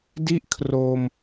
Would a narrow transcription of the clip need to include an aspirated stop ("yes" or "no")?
yes